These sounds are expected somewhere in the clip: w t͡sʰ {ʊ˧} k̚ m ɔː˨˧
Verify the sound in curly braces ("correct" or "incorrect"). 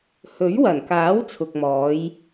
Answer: incorrect